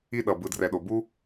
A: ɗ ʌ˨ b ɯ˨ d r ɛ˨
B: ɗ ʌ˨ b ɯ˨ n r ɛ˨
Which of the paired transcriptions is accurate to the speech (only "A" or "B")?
A